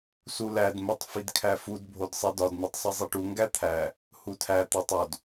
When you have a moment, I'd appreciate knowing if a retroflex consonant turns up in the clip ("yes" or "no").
yes